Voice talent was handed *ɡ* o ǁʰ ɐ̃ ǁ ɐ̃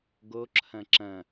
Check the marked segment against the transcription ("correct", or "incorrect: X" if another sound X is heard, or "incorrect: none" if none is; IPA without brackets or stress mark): correct